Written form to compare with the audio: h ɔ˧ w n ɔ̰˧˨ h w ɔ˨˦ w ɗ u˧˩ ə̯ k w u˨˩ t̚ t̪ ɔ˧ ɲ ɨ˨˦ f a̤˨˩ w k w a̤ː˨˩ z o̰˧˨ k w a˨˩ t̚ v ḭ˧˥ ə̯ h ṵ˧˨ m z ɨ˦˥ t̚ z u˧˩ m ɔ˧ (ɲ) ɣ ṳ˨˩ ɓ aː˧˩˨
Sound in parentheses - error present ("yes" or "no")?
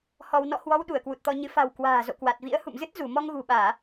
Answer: yes